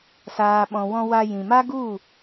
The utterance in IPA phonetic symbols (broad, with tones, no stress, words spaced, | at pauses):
saː˨ɓɔ̃˨wɔ̃˧ wa˧jĩ˨ma˦ ɡu˦˨